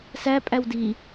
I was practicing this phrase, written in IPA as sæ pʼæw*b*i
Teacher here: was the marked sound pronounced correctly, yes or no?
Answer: no